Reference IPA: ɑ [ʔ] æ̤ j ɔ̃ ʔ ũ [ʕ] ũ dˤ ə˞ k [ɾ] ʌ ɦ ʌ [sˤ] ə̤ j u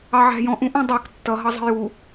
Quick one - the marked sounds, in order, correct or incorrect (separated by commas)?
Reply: incorrect, incorrect, incorrect, incorrect